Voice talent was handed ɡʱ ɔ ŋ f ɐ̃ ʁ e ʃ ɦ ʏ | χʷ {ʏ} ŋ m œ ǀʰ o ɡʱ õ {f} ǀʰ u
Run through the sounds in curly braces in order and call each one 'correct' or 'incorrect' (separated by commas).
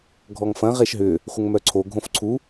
incorrect, correct